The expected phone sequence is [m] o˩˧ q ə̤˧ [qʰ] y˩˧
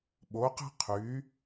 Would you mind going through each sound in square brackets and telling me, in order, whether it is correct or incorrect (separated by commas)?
incorrect, correct